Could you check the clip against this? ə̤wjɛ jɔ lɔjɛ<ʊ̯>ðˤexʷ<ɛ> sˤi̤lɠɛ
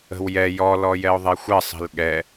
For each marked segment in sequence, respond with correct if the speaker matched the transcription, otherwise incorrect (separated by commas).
correct, correct